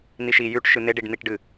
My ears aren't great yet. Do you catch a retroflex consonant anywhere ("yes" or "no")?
yes